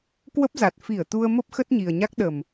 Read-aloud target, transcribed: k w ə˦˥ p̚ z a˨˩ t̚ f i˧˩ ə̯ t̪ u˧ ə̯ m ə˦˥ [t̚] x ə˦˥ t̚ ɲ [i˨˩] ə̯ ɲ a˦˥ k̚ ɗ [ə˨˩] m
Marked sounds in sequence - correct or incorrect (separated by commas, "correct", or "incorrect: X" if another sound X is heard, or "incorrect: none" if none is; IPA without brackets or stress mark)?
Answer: incorrect: p̚, correct, correct